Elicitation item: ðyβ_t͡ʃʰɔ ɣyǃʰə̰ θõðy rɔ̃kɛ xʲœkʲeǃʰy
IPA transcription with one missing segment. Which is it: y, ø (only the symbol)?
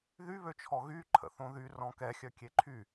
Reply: ø